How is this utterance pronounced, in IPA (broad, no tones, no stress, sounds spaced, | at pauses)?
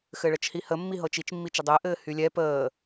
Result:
x ɘ ɭ ə t͡ʃ h i h ə mː i ɦ ɤ t͡ʃ i t͡ʃ mː i t͡ʃ ɘ dˤ ɘː ʔ ɘː h y lʲ ɛ p əː